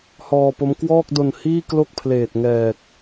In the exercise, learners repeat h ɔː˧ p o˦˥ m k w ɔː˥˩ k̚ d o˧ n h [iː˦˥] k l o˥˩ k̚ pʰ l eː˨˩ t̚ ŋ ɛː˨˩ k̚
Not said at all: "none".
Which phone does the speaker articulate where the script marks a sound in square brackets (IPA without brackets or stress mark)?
iː˥˩